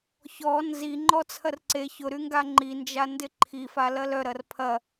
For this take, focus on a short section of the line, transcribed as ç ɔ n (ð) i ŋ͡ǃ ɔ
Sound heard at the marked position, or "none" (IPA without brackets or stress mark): z